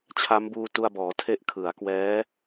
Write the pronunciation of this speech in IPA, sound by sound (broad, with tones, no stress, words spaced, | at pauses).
t͡ɕʰa˦˥mbuː˧tu˧a̯bɔː˩˦ tʰe˦˥ʔ kʰɯ˩˦a̯kwɛː˦˥